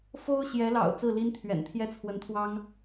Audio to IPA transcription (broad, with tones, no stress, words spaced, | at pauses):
fo˥ʊ̯ɕjɛ˧˥lɑ̰˨˩ʊ̯ t͡sɹ̩˥˩li˥nt̪ʰɥɛ̰˨˩n t̪ʰjɛ˥t͡sʰwə˧˥nt̪ʰwɑ˥ŋ